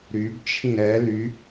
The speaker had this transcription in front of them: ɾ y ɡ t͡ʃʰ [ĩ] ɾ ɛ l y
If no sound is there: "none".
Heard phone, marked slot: ĩ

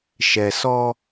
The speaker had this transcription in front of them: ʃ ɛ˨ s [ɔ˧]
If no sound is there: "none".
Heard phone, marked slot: ɔ˧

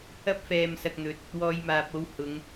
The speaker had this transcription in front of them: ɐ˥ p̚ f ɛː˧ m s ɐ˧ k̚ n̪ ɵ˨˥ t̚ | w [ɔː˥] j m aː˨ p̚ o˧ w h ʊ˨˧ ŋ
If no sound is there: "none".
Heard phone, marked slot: ɔː˧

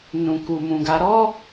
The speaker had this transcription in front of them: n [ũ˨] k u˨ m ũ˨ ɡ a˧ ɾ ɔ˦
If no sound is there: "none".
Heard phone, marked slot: ũ˨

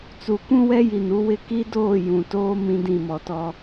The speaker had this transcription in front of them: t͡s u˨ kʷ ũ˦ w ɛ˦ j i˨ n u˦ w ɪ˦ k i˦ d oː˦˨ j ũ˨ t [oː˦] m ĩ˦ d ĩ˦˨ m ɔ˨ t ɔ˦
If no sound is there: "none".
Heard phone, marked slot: oː˦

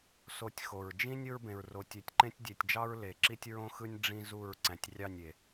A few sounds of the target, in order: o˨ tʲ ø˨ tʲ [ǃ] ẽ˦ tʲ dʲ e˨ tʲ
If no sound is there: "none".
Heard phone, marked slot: ǃ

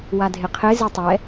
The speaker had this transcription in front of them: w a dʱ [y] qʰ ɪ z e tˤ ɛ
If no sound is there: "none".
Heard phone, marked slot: ɪ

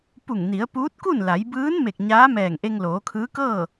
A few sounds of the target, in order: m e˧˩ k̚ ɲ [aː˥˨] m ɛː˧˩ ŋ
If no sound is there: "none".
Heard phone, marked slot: aː˧˥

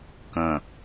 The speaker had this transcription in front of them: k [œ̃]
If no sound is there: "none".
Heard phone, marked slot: ə̃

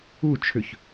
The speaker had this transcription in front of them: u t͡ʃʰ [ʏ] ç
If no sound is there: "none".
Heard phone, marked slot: ʏ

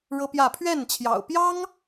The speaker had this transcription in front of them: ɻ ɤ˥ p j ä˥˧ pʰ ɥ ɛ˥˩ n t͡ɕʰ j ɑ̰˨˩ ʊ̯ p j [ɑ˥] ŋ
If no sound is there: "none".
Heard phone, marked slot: ɑ˥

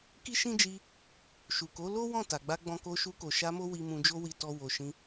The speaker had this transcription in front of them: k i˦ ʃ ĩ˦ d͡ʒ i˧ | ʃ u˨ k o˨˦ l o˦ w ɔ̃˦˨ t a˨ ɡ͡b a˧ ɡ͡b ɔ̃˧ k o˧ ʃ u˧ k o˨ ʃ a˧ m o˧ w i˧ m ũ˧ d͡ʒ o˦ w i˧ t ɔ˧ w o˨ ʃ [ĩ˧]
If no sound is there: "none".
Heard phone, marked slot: ĩ˧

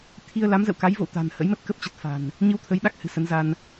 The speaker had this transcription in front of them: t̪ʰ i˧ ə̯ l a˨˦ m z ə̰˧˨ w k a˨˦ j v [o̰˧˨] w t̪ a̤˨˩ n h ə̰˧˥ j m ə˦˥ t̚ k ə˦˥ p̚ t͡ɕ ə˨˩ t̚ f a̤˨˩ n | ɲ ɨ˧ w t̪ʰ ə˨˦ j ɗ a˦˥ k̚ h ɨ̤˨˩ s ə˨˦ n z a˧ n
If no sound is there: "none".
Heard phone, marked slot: o̰˧˨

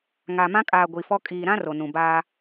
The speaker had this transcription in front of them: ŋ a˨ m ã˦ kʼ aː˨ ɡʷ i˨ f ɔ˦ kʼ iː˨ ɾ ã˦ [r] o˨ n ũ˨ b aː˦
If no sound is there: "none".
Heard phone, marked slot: r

